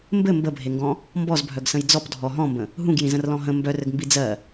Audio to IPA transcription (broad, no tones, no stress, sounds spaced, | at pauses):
m b ɘ m b ə bʱ e ŋ ɡ ɔ̃ | m b ɔ z bʱ œ ɡ s ə̃ j d͡z ɔ p dʱ ɔ ɦ ɔ̃ m b ə̃ | ɦ ũ ɡ j ĩ z ə̃ r l ɔ̃ ɦ ə̃ m b œ r ɘ ɡ m b i d͡z ɜ